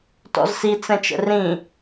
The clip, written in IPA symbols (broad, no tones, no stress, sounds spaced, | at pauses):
t ɔ̰ z s i t͡s ɛ̃ t͡ʃ ə̰ r ĩ